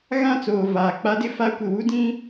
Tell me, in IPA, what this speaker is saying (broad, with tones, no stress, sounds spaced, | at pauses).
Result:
ɣ ã˦˨ t͡s oː˨ v aː˨ k͡p a˦ d ɪ˦ f a˦ kʷ ɪ˨ w u˦ d ĩ˦